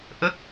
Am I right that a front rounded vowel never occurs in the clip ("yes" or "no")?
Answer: yes